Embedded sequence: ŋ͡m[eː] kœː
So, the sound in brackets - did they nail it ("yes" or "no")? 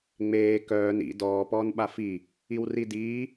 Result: yes